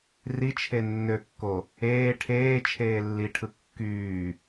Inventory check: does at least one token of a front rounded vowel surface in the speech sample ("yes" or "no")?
yes